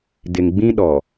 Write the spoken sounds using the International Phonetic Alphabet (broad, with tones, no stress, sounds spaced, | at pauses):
d ɪ˨ ŋ ɡ͡b ĩ˦ ɗ ɔ˨